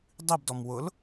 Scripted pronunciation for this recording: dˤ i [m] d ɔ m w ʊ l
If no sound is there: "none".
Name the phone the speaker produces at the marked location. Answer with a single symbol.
b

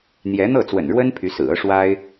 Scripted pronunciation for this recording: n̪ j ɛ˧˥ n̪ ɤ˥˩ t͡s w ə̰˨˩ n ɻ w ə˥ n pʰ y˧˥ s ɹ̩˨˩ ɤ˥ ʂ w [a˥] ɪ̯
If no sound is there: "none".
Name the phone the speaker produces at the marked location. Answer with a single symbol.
a˥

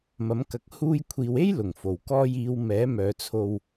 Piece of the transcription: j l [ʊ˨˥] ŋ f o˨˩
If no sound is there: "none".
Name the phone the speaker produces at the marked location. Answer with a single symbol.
ʊ˨˩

